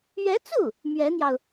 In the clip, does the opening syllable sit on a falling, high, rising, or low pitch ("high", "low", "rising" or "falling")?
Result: rising